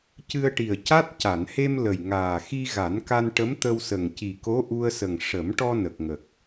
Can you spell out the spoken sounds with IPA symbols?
cɨ˧ə̯ʈi˨˩ə̯ca˦˥t̚ ca˨˩˨nhe˧m lə˨˩jŋaː˨˩ xi˧ɣa˨˩˦nka˧n ʈə˧˥mt̪ə˧wsə˨˩ŋ ci˨˩ko˧˥ʔu˧ə̯sə˨˩ŋ ʂə˨˩˦m ʈɔ˧nə˨˩k̚ŋə˨˩k̚

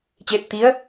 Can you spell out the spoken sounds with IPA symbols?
t͡ɕe˧p̚t̪i˧˥ə̯

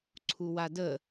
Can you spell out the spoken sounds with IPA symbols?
ǀʰuwadə

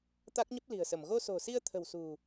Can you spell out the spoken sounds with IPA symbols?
t̪a˦˥k̚ɲə˦˥p̚li̤˨˩ə̯sə˧˩m ɣo˧so̤˨˩si˧ə̯t̪ʰə̤˨˩w sṳ˨˩

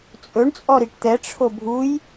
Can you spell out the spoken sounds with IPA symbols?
t͡sʼɵɳ t͡sʼɔɾiʈt̪ɛ ʈ͡ʂʰobʱuj

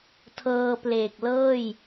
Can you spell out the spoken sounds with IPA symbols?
tʰɤː˧pleː˨˩k̚ lɤː˥˩j

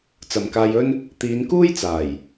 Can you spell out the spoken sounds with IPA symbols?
t͡sɐ˨mkaː˧jɵ˥n | t̪iː˨˧nkuː˥jt͡saː˨˩j

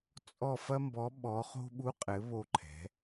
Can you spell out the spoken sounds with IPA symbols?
t͡sʼɔ˥˧ fɐ˥mbɔ˧˥ ɓɔ˧˥χo̤˥ ɓu˧˥qʼɘ˩˧ βo˧ǃʰɛ̤˩˧

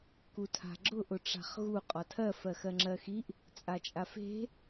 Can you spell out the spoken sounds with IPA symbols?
kutʰa̤ɡ͡ǁʊ ʔʊʈ͡ʂa̤χɣu qʼɒtʰɜ fɜxɜŋ͡ǁɜxiʔ | t͡sʼat͡ʃʼafe̤

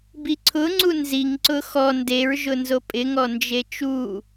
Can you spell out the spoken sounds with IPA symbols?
biǀʰʊŋ͡ǀu nziŋ ǀʊxɔ ndeɹʒʊ nzopʼɪŋɔ nd͡ʒet͡ʃu

